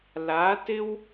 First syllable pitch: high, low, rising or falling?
rising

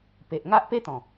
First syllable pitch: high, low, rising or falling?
low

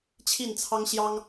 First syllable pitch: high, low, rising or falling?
falling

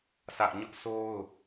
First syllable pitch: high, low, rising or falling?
high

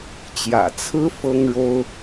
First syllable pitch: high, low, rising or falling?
low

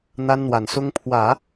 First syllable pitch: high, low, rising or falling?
high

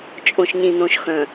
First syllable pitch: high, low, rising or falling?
low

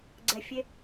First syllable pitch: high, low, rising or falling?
low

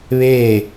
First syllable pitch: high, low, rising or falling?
falling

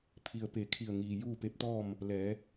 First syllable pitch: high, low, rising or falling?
low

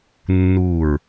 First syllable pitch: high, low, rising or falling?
falling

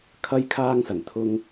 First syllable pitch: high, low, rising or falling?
high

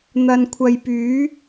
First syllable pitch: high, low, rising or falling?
low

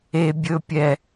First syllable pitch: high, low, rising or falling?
low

